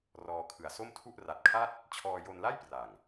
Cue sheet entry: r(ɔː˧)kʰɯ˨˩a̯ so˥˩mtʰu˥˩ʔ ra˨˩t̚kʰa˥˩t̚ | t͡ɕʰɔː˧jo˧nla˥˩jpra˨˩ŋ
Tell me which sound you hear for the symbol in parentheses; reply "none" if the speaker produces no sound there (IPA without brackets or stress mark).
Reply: ɔː˧